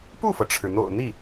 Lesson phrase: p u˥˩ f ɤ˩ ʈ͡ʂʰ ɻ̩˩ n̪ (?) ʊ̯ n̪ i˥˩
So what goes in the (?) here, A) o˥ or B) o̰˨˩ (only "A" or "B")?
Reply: B